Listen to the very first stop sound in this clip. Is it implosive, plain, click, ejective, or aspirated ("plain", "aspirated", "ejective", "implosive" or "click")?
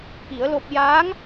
plain